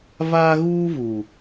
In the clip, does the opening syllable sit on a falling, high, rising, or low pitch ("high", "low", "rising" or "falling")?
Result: high